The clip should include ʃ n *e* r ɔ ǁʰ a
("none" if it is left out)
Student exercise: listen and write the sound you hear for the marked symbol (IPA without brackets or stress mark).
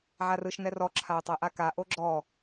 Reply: ɛ